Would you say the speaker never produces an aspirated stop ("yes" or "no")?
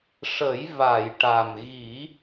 yes